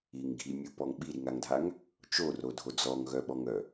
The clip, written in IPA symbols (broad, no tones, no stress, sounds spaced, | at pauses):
i ŋ ɡʱ i mʲ u p ɔ ŋ ɓ i ɾ i ŋ a ŋ dʱ a ŋ | t͡ʃ o r o dʱ o d͡z ɔ ŋ ɣ œ ɓ ɔ ŋ œ